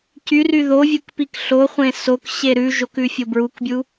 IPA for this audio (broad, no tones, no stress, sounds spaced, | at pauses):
c y r y ð o vʲ u k p i k ɬ o χʷ ẽ s o k ɕ e ɾ ʉ ʒ o k ʉ fʲ o b ɹ u k bʲ u